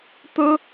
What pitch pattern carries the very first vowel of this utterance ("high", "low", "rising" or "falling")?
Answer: high